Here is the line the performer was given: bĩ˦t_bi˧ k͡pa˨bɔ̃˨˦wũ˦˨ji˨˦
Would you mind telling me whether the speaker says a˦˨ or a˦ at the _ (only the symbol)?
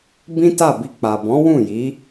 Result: a˦˨